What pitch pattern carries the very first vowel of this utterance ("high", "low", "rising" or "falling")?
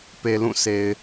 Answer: low